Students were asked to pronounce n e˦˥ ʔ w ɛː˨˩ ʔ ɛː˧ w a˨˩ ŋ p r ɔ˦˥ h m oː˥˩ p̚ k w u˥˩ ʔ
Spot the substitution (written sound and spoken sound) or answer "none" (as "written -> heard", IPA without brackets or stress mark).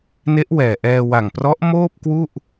h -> ʔ